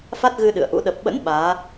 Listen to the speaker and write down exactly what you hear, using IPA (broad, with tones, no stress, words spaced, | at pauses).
fa˦˥t̚ ɣɨ˧ ɗɨ̰˧˨ə̯ʔṵ˧˥ ɗə˨˩p̚ɓə̰˧˥n ɓaː˨˦